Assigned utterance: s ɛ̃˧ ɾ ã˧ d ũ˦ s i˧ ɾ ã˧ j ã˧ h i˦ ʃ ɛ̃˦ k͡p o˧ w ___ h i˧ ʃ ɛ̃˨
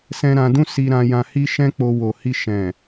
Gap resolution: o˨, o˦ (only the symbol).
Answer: o˨